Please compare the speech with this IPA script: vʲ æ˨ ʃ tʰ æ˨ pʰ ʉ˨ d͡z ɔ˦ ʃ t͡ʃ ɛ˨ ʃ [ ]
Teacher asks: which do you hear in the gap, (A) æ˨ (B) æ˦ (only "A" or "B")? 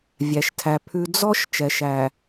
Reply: A